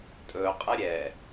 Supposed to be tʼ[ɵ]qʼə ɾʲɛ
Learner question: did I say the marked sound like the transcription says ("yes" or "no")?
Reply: yes